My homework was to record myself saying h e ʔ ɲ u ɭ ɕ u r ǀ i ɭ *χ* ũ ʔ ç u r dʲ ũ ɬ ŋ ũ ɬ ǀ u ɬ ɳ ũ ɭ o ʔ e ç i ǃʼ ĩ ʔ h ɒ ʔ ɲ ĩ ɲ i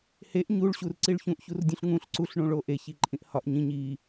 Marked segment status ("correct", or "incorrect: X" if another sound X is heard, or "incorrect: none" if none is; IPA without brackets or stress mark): incorrect: ç